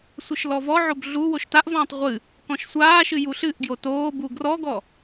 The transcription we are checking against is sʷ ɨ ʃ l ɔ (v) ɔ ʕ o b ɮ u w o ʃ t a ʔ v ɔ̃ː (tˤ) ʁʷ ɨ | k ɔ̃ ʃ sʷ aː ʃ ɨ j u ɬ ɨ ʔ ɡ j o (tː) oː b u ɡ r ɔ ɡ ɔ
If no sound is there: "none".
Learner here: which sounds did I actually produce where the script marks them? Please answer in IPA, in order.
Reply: v, tˤ, t

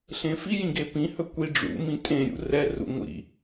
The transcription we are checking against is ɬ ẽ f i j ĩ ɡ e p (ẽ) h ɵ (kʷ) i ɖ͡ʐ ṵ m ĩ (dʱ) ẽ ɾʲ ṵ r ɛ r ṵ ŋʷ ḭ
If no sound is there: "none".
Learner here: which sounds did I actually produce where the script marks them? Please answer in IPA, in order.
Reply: ĩ, kʷ, tʼ

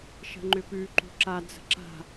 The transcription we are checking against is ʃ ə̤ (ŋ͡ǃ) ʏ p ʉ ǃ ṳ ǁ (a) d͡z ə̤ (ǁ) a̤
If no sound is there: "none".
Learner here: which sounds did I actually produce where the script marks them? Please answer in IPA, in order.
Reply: ŋ͡ǃ, a, ǁ

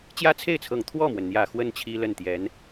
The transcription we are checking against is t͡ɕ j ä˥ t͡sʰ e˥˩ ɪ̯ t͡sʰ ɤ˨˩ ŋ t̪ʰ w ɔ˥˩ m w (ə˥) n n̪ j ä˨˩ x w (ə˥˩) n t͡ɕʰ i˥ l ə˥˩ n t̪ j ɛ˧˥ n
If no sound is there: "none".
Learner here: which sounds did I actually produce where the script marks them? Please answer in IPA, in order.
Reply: ə˩, ə˥˩

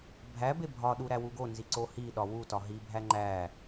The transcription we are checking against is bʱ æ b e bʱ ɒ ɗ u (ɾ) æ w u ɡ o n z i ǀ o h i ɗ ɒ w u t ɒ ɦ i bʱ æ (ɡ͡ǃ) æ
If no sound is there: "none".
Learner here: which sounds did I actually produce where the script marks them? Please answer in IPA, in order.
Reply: ɾ, ŋ͡ǃ

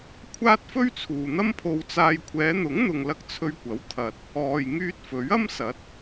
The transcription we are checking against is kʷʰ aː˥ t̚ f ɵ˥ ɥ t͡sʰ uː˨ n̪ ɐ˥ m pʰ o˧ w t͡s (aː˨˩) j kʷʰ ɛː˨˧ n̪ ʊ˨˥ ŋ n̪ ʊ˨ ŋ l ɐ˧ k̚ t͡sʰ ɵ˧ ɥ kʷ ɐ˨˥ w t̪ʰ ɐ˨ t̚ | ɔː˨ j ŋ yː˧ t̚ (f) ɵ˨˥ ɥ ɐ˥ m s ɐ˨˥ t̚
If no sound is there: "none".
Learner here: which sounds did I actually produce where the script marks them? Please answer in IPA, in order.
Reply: aː˧, f

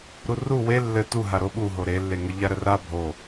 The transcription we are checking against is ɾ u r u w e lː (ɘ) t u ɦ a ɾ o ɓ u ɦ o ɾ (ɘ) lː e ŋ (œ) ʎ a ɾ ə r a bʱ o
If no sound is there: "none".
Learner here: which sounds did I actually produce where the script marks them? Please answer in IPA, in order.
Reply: ɘ, e, ə

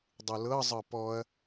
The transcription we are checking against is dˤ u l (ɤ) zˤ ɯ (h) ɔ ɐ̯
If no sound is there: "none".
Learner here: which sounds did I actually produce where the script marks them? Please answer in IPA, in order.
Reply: ɤ, p

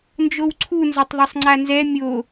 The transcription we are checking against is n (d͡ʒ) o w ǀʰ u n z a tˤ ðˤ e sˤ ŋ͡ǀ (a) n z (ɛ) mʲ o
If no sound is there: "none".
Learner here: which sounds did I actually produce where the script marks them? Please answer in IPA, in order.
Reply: d͡ʒ, a, ɛ

